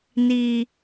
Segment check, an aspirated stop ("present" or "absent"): absent